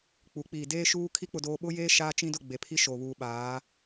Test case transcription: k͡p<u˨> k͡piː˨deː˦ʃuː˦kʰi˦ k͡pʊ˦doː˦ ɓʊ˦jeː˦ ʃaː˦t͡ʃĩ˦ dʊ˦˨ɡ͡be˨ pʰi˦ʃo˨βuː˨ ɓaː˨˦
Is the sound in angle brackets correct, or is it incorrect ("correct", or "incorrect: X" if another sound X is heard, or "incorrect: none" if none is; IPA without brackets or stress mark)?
incorrect: u˨˦